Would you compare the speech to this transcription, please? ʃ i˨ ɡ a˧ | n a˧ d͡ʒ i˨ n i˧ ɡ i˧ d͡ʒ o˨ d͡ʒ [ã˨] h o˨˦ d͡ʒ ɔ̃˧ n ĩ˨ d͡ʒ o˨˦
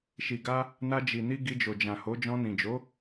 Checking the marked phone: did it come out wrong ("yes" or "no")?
no